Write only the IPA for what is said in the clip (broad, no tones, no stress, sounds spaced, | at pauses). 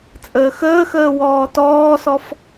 t͡sʼ əː x əː x əː w ɔː t ɔː s ɔ f